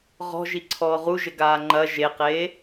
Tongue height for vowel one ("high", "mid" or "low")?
mid